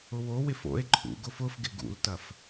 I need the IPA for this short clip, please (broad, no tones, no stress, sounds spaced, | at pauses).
ʊ w o w ɪ f o̰ e̯ ǃʰ ṵ ɡ ʊ f ʊ f ɡ ɪ ɡ ṵ l t ɐ f